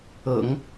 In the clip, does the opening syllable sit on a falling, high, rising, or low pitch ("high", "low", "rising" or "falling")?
low